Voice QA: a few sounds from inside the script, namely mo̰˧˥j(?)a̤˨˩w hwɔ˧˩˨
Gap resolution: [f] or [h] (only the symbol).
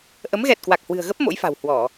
f